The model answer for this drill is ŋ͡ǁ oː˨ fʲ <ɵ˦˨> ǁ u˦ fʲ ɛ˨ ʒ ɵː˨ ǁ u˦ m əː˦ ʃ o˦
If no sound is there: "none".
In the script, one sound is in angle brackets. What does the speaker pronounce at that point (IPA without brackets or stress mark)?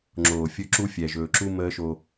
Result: ɵ˦˨